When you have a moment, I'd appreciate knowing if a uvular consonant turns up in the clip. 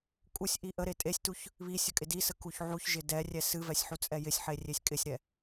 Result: no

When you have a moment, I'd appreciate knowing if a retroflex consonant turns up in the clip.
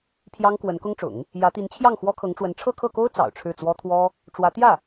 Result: yes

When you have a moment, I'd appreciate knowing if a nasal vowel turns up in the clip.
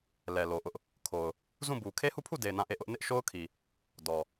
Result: yes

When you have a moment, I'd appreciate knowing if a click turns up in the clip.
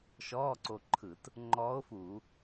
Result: yes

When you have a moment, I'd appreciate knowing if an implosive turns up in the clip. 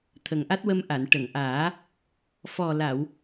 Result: no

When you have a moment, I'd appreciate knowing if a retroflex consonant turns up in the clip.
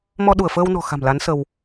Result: no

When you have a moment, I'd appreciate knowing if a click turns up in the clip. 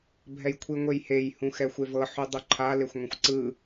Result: yes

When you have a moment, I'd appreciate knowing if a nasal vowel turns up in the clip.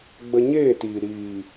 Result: no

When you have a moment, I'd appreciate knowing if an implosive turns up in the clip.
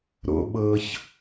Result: yes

